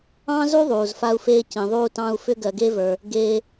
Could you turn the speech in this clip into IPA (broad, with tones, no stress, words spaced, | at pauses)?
ɑ̃˥zu˥ ðˤuː˩zfa˥u̯feː˥ cĩ˩ðˤuː˥tɑ̃˥u̯ fʏ˥ɡɜ˩ɡe˥və˞˩ | ɡeː˥